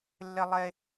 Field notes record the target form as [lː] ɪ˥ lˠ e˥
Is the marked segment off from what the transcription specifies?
no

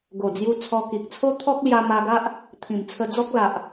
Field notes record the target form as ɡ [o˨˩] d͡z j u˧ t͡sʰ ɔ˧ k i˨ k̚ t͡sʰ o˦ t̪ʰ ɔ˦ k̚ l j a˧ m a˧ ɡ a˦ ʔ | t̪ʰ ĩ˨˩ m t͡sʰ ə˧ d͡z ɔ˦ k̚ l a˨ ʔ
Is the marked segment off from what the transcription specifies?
no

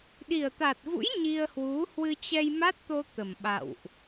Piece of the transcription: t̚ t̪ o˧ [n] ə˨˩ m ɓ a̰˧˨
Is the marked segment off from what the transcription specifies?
yes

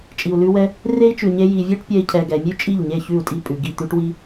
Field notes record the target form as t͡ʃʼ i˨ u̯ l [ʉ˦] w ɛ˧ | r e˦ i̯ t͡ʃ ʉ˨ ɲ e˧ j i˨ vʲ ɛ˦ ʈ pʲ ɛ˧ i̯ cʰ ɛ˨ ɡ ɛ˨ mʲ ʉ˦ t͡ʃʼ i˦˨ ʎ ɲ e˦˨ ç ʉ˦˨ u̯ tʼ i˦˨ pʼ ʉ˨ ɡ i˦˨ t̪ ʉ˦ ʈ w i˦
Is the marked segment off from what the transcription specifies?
yes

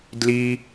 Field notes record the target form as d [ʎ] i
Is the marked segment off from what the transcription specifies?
yes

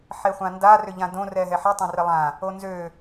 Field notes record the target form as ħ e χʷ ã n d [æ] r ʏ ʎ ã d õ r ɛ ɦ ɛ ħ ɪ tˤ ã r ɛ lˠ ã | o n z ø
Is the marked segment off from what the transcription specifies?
yes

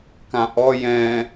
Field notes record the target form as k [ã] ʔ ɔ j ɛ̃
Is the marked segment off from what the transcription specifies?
no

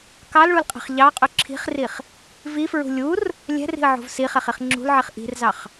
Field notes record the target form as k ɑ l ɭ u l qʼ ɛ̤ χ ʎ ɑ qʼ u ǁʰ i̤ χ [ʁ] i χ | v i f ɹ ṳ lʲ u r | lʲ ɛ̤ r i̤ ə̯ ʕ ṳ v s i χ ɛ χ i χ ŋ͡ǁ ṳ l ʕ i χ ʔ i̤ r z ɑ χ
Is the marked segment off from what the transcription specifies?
yes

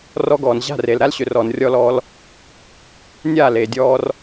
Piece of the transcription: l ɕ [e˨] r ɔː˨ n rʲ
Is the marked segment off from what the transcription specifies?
yes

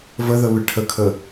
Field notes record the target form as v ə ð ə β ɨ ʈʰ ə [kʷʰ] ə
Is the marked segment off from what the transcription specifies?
yes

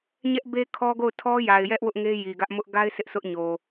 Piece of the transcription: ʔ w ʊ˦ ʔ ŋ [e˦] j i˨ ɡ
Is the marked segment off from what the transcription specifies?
no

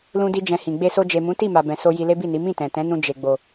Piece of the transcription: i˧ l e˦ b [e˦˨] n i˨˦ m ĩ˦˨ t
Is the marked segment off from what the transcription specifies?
yes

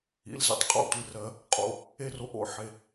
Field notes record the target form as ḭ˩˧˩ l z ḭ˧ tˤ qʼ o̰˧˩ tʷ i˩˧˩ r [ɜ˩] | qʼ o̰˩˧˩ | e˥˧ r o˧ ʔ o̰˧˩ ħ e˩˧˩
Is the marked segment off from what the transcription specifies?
yes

